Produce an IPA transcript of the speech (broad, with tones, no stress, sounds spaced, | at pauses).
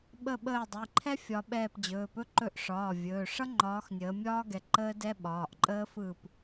ɓ ə˦˨ ɓ əː˦˨ dˤ i˩˧˩ ǃʰ ɛ˥ fʲ ɒ˨˦ ɓ ɛː˦˨ p d͡ʑ ɵː˩˧˩ p ɵ˥ ǃ ɵ˦˨ ʔ ʂ ɒː˩˧˩ vʲ ɵː˩˧˩ ʂ ʌ˥ ŋ͡ǃ ɒː˨˦ x nʲ əː˨˦ mʲ ɒː˥ ɡ ɛ˨˦ ǃ əː˥ d ɛ˥ ɓ ɒː˩˧˩ ʔ ǃʼ əː˥ f ɯ˦˨ p